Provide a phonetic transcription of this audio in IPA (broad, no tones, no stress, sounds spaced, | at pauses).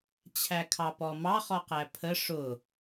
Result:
t͡ɕʰ æ kʰ ɑ p ɔ m ɑ χ ɔ q æ pʰ ə ʂ ʊ